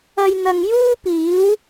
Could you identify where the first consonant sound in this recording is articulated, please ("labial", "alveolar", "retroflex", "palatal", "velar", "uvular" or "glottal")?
palatal